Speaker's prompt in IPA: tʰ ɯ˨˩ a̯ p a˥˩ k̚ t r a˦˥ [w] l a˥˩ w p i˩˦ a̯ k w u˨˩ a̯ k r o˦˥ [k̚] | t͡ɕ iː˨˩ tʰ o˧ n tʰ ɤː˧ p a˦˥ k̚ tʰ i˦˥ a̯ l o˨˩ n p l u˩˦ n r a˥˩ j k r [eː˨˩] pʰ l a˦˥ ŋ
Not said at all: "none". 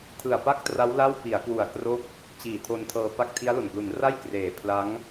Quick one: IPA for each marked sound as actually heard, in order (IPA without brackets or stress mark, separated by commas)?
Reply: w, k̚, eː˨˩